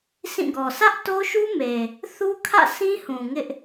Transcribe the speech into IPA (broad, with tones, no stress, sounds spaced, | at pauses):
sʰ ĩ˦˨ ɡ ɔ˨ s ä˦ ʔ t o˦ ʃ u˦ m e˨ | θ u˦ kʰ ä̰˦˨ s ĩ˦ h ũ˨ ŋ ɪ˦ ʔ